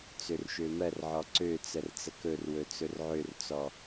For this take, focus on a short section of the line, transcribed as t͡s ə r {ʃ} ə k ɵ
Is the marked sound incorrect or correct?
incorrect